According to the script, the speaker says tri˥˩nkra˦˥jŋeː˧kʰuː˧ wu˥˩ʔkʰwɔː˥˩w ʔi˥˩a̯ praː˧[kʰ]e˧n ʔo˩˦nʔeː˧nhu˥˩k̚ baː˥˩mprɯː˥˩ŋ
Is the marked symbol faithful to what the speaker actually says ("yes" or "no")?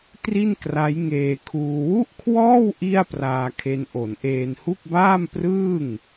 yes